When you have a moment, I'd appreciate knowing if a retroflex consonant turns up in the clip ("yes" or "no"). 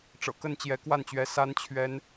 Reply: yes